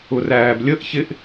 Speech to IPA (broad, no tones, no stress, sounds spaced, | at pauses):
ʊ r æː b lʲ ə ʔ ç ɪ ʔ